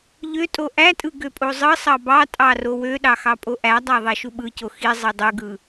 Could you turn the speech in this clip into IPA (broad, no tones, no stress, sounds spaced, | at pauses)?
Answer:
ʎ ø tʼ o ʔ æ tʼ ɯ ɡ ø pʼ o zˤ ɯ sˤ ɑ b ɑ tʼ ɑ r o w ø ɗ ɑ x ɑ pʼ o ʔ æ dˤ æ ðˤ ɑ ʃ u ɓ ɯ c o x i zˤ i dˤ ɯ ɡ ɯ